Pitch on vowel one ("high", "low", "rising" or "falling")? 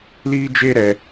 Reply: high